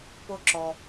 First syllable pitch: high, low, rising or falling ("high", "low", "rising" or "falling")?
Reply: high